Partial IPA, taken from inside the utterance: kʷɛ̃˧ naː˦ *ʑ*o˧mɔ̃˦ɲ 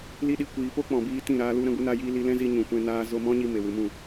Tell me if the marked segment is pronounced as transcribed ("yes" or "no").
no